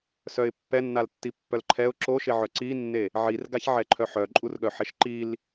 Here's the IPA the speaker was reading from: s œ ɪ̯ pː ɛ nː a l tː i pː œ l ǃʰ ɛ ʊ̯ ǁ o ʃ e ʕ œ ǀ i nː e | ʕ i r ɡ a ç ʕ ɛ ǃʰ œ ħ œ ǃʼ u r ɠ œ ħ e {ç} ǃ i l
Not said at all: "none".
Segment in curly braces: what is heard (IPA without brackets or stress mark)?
ʃ